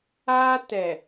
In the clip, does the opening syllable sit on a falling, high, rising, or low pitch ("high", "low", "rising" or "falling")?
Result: high